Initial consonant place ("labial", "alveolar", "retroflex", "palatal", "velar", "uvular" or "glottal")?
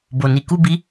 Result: labial